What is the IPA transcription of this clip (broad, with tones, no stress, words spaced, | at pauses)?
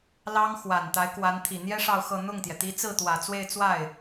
lɑ˥ŋ xwa˨˩nt̪a˧˥ɪ̯kwa˧˥n t̪ʰi˨˩n̪jɛ˥ ʂɑ˥˧ʊ̯xɤ˥˧ n̪ʊ˥˩ŋt̪jɛ˩ t̪i˧˥t͡sɹ̩˥˩t̪wä˨˩ t͡swe˥˧ɪ̯t͡swa˥˩ɪ̯